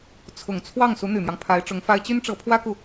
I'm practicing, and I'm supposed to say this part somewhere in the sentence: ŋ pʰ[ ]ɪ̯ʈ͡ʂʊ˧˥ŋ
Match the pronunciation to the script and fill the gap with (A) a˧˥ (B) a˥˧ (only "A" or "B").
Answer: A